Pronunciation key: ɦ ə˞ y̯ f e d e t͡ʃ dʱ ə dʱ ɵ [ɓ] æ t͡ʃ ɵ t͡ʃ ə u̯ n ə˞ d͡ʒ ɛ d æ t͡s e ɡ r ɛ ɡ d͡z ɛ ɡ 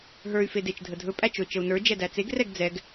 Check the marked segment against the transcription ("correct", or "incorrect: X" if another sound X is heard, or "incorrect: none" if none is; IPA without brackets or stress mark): incorrect: pʼ